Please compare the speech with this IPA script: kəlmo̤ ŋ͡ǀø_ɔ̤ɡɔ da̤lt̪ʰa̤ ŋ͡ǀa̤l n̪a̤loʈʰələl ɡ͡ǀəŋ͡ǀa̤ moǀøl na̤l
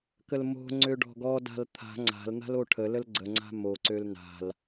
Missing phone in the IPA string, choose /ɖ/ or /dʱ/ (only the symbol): ɖ